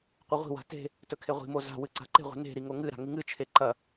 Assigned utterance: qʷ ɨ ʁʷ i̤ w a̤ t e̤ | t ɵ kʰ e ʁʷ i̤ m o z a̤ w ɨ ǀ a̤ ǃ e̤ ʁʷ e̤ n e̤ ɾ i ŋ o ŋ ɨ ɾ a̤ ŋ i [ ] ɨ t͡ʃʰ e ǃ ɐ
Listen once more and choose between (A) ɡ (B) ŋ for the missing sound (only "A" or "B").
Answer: B